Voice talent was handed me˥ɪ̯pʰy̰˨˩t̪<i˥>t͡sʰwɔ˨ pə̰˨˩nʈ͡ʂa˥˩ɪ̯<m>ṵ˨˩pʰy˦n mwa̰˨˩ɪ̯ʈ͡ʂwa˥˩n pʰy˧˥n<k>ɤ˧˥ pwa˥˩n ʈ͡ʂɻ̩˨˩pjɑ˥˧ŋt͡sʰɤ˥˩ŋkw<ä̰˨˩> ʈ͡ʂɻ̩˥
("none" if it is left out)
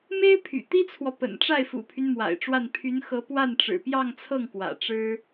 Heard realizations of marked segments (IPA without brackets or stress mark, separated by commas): i˥, f, x, ä̰˨˩